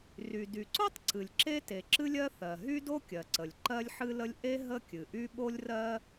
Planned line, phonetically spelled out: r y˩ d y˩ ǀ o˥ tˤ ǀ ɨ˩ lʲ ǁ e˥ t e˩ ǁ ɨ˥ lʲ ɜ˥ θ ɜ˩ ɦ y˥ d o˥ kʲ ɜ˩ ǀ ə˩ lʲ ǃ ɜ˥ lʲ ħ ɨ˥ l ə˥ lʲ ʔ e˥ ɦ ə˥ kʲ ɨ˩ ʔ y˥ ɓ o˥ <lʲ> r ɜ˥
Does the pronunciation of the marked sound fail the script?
no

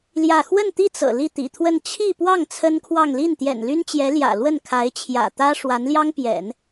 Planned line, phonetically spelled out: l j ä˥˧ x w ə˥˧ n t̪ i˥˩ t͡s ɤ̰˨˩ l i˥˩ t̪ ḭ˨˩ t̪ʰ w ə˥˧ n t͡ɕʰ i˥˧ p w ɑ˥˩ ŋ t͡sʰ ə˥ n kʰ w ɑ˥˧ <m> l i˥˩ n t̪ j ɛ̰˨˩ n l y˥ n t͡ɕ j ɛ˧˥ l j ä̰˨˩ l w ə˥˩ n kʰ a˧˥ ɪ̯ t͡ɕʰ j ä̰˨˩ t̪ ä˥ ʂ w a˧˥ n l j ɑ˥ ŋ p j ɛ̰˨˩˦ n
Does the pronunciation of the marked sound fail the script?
yes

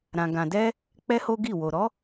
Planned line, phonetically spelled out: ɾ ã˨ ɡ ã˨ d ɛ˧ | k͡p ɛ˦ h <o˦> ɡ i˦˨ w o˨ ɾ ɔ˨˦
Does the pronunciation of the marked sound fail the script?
no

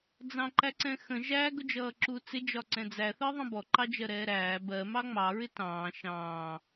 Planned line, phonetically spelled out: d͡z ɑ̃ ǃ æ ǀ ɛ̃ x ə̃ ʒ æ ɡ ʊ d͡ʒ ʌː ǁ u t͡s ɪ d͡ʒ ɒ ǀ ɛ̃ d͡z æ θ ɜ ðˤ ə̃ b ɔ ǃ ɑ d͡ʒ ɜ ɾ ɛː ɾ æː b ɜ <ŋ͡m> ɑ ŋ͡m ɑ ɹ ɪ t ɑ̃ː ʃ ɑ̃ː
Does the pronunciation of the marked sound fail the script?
yes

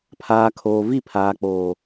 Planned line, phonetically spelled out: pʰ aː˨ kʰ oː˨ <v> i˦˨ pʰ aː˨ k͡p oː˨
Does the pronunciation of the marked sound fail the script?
no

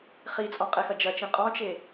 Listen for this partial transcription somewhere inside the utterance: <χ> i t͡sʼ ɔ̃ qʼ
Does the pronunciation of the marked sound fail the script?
no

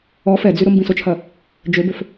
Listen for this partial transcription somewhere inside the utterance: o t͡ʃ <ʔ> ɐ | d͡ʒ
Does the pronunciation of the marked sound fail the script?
yes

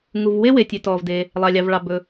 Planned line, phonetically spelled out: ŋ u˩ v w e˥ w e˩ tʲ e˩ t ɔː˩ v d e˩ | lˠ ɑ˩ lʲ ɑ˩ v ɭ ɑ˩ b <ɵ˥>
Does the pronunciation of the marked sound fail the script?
yes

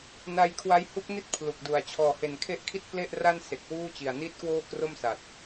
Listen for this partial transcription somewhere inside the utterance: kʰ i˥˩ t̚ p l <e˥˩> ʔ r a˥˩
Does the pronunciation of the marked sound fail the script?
no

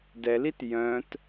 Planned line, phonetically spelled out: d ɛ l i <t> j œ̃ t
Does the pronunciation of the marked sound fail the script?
no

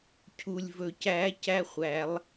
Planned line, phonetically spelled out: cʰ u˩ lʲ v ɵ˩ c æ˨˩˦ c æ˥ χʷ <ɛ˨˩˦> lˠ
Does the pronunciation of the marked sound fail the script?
yes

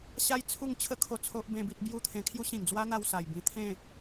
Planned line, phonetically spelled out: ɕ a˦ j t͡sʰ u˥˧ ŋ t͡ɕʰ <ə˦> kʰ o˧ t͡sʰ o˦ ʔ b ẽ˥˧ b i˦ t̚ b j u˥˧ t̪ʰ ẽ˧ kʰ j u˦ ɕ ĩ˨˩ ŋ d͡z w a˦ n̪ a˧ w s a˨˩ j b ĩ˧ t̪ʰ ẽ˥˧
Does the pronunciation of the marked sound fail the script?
no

